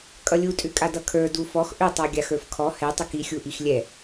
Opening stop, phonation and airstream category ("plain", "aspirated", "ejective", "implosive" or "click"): ejective